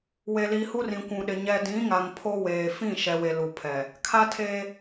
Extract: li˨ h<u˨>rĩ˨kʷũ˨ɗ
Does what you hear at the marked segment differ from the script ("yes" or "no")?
yes